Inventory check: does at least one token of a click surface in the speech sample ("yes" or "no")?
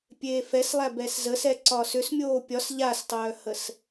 yes